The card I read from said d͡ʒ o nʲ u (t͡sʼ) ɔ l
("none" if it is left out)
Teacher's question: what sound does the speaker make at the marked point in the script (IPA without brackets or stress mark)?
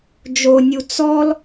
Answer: t͡s